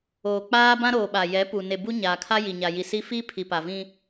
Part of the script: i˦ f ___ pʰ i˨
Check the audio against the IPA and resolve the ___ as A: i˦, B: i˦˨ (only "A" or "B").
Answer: A